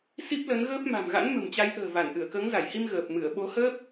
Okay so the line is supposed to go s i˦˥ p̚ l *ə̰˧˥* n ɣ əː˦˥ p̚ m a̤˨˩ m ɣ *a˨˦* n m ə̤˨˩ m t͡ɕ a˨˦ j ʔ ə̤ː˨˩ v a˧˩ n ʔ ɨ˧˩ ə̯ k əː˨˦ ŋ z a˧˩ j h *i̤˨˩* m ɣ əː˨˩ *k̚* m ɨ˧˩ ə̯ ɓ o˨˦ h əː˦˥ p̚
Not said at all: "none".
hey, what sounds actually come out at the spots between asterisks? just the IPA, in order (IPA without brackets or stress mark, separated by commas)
ə˨˦, a̰˧˥, i˧, p̚